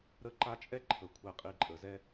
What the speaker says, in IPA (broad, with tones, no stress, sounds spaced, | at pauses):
ɾ ə˦ ǃ a˦ t͡ʃʼ ɛ˥ ǃʰ ə˩ kʷʰ ɛ˨ qʼ i˨ ǃʼ ə˩ z ɛ˥